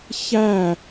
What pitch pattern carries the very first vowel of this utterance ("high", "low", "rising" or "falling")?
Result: falling